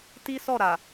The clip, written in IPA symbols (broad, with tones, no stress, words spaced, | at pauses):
ti˦sɔ˦˨ɾa˨